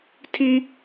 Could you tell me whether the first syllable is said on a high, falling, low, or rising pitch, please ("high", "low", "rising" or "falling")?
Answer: high